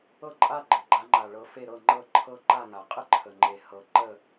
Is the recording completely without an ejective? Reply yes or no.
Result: no